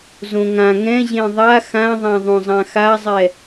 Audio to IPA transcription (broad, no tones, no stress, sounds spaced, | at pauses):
z õ ŋ ã ŋ ɛ̃ ʑ ẽ ðˤ a x ã ðˤ ã ðˤ õ zˤ ã x a zˤ ɛ